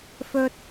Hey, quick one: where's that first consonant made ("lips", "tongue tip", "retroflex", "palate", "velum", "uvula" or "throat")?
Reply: lips